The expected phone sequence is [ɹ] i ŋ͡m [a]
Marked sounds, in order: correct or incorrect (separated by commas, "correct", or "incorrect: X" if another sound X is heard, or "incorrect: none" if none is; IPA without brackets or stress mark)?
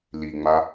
incorrect: l, correct